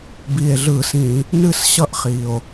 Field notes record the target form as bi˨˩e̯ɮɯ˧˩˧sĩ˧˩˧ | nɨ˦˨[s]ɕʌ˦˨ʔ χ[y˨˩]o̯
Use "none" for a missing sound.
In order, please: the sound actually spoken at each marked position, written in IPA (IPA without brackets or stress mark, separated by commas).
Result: s, i˨˩